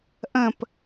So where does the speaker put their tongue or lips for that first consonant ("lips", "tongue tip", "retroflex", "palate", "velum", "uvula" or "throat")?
throat